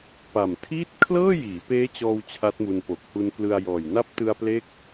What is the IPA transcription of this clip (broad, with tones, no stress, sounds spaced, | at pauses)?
p a˨˩ m tʰ iː˥˩ t̚ kʰ l ɤː˥˩ j iː˩˦ p eː˦˥ t͡ɕ ɔː˧ w t͡ɕʰ a˦˥ t̚ m u˧ n p o˨˩ k̚ h u˧ n k l ɯ˧ a̯ j ɔː˨˩ j n a˦˥ p̚ t ɯ˧ a̯ p l e˦˥ k̚